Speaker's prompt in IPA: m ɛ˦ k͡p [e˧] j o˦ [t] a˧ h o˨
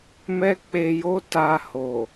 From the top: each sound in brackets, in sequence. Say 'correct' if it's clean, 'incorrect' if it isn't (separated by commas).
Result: correct, correct